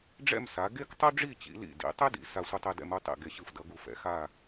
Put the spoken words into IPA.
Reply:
ɖ͡ʐ ɛ̰˥˧ m s a˩˧ ɡ e˥ k tˤ u˥ ɖ͡ʐ i˥˧ t͡ɕ ḭ˩˧ l ḭ˧˩ d ḭ˩˧ tˤ e˥ d ḭ˩˧ s a˧ sʷ ɯ˧ tˤ e˧ d ɛ̰˧ m u˥˧ tˤ ḭ˧˩ ɡ e˧˩ ɕ ɯ˧˩ f d ʌ˩˧ ɡ u˧ f ɛ̰˩˧ x a˥˧

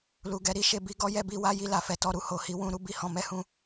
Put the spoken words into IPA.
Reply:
l u˨ ɡ ɛ˨˦ ɾ i˦ ʃ e˧ b i˦ ɡ ɔ˦ j ɛ˦ b i˧ w a˦ j i˦˨ l a˨ f ɛ˨˦ t ɔ˧ ɾ u˨ h o˨ h i˨˦ w ũ˧ ɾ u˦ b i˦ h ɔ̃˧ m ɛ˦ h ũ˦˨

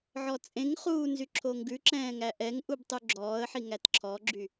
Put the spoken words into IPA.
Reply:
ʕ ɔ t͡sʼ ẽ ŋ χ uː n z y ǁʰ o ŋ ɡ ʉ ǁ ɛ̃ː ŋ æ ʔ ɛ ŋ ʔ u b tˤ ʉ ɡ͡ǁ ɔː ə̯ ħ i ŋ æ t ǁʰ ɔ ɡ͡ǁ y

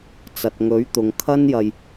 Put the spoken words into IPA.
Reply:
t͡s ɐ˨ t̚ ŋ ɵ˨˥ ɥ t̪ ʊ˨ ŋ kʰ ɐ˥ n j ɐ˧ j

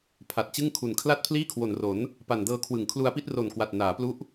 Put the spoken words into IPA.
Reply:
pʰ a˨˩ t̚ t͡ɕ ɯ˥˩ ŋ kʰ u˨˩ n kʰ l a˥˩ t̚ pʰ l iː˥˩ kʰ w o˨˩ n r o˩˦ n | p a˨˩ n d ɤː˧ kʰ w ɯ˨˩ ŋ kʰ l u˧ a̯ p i˥˩ t̚ r o˨˩ n k w a˨˩ t̚ n aː˩˦ p l u˦˥ ʔ

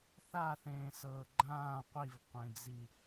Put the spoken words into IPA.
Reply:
θ a θ ẽː s ɤː ɡ͡ǃ ãː qʷ i v qʷ ẽ d͡z i

